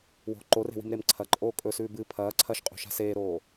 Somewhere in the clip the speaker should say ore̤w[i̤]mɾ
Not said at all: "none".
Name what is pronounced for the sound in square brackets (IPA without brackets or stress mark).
i̤